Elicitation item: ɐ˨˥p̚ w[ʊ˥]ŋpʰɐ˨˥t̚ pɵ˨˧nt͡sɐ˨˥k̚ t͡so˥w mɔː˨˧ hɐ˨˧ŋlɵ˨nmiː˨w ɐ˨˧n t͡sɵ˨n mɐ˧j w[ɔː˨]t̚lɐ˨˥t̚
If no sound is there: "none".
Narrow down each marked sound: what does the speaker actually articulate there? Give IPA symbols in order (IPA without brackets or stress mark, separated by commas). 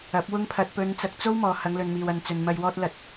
ʊ˥, ɔː˧